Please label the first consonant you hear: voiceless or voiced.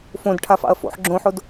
voiceless